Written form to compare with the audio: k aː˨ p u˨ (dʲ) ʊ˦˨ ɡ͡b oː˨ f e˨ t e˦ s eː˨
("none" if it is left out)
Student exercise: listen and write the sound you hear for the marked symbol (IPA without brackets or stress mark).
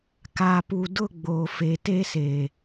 d